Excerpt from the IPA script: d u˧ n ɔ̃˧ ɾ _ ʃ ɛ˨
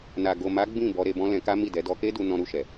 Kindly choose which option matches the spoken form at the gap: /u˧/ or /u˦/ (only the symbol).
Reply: u˧